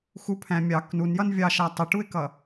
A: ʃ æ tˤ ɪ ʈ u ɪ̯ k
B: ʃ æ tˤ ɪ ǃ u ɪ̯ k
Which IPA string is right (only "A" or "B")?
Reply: A